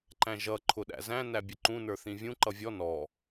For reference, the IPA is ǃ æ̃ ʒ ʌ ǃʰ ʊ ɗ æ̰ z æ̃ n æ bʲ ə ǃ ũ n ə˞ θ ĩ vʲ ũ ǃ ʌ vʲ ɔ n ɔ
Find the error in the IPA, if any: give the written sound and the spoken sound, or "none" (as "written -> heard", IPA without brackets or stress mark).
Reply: none